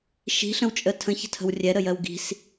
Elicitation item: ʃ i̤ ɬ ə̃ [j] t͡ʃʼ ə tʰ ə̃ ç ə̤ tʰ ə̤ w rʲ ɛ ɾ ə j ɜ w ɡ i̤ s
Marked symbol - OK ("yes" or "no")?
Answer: no